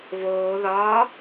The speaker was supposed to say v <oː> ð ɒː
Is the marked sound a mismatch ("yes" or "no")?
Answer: no